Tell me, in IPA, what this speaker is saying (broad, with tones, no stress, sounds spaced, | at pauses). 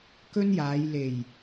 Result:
k ɵ˥ n j aː˨˧ j l e˨˩ j